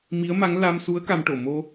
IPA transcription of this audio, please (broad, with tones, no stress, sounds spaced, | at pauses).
m i˧˥ ə̯ m a˧˥ ŋ l a˧ m s u˧˥ ə̯ k a˧ m ʈ o˨˩˨ m o˧